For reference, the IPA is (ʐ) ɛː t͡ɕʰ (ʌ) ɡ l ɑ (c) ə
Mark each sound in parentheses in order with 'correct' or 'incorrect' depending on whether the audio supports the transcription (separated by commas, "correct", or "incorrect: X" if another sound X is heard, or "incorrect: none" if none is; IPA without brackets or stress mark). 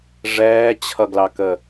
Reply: correct, correct, incorrect: k